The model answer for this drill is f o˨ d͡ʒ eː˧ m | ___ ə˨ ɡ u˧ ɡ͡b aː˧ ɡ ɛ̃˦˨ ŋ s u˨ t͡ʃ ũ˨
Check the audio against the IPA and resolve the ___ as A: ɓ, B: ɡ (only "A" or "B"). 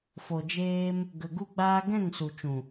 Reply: B